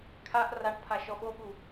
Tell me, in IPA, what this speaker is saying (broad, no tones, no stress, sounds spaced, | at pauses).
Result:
kʰ a ʔ r a ʈ pʰ a ʃ ɔ ɓ o ɠ u